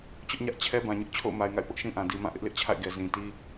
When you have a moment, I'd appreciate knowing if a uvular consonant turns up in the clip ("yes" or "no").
no